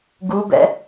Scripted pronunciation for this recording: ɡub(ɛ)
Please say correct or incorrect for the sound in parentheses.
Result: incorrect